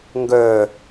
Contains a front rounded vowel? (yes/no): yes